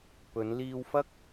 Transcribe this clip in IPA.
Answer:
p ɵ˨˧ n l iː˧ w f ɐ˥ k̚

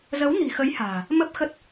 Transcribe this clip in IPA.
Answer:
z ə˨˦ w n i̤˨˩ x ə˨˦ j h a̤ː˨˩ | m ə˦˥ p̚ x ə˦˥ t̚

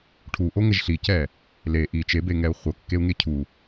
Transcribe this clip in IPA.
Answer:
ʈʰ u ʔ o ŋ ɛ ʒ ɬ i c ɛ | l e ʔ i t͡ʃ e b e ŋ ɛ u̯ χʷ ɤ kː e u̯ ŋ e cʰ u

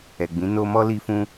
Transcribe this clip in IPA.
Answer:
ɛ˨ ɡ͡b ĩ˨˦ n o˦ m ɔ˦ l i˧ f ũ˧

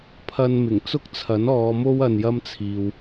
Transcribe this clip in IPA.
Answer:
pʰ ɐ˧ n m ɪ˨˩ ŋ t͡s ʊ˥ k̚ t͡sʰ ɐ˨˥ n ɔː˨˧ m o˥ w ɐ˧ n j ɐ˥ m t͡sʰ iː˨ w

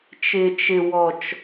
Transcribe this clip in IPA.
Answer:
t͡ʃ ɪ˨ t͡ʃ ɪ˨ w ɔ˨ t͡ʃ

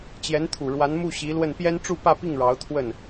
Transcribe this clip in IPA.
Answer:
t͡ɕ j ɛ˧˥ n t̪ʰ u˨˩ ɻ w a˧˥ n m u˥˩ ɕ i˧˥ l w ə˥˩ n p j ɛ˥ n ʈ͡ʂ u˥˧ p ä˥˧ p i˥˩ ŋ ɻ ɑ˧˥ ʊ̯ t̪ʰ w ə˥˩ n

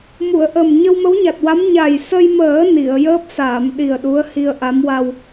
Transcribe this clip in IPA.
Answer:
m u˨˩˨ ə̯ ʔ ə˨˩ m ɲ ə˧ w m ə˧˥ w ɲ a˨˩ t̚ w a˧˥ m ɲ a˨˩ j s ə˧ j m əː˨˩˦ n i˨˩˨ ə̯ j əː˦˥ p̚ s aː˨˩˨ m ɗ i˨˩ ə̯ ɗ u˧˥ ə̯ h i˧ ə̯ ʔ a˧˥ m w a˧ w

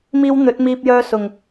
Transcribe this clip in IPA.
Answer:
m iː˧ w n̪ ɵ˨˥ t̚ m iː˧ p̚ j œː˧ s ʊ˨˩ ŋ

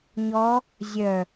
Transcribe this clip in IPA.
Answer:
ɲ ɔ | zʲ œ

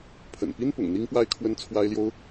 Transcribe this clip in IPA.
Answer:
pʰ ə̰˨˩ n p i˦ n p ʊ̰˨˩ ŋ n̪ i˦ ŋ p w a˦ ɪ̯ kʰ w ə˦ n t͡sʰ w a˦ ɪ̯ l j o˦ ʊ̯

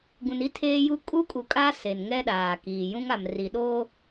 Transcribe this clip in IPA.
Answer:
ɡ ũ˨ n i˦ tʰ eː˦ j u˦ kʼ u˦ kʼ u˨ kʼ a˦ s e˨ n ŋ ɛ˦ ɗ aː˨ k iː˨ j ũ˦ ŋ a˨ m r i˨ ɗ o˦

